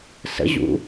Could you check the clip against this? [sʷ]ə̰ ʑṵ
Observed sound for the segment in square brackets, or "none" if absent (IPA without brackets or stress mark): s